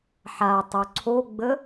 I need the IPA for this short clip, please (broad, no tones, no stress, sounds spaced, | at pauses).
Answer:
ħ a tˤ o ǀʰ o ɡ͡b ə